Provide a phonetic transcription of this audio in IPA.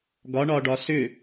ɡ ɒ ɳ ɒ ɖ ɒ s ʏ

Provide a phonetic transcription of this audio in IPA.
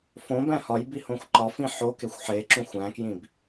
f õ b æ̃ h ɒ j b i h õ xʷ ǃ ɒ f ĩ ħ o k e xʷ ħ e ǁ ũ xʷ æ̃ k j ĩ b

